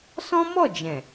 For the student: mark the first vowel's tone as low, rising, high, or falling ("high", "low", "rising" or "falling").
high